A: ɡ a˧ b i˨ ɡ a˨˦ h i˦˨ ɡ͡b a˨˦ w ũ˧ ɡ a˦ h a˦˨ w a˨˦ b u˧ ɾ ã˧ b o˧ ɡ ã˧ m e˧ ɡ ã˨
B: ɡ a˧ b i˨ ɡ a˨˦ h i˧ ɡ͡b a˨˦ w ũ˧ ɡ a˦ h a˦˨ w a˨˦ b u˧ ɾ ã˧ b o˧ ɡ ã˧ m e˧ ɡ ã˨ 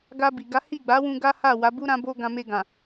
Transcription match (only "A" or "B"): A